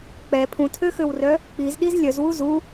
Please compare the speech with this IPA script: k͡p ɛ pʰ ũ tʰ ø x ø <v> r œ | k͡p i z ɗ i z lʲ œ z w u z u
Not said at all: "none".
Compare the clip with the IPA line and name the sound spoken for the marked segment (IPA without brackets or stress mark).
w